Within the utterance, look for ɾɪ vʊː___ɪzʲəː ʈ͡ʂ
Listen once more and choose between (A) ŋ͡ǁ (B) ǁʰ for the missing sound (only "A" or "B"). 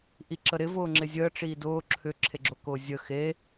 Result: A